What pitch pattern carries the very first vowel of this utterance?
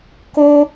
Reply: high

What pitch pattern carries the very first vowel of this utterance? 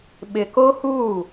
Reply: low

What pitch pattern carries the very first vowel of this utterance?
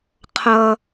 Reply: low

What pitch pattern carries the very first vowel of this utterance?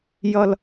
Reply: low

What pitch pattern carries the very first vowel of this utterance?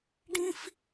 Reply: high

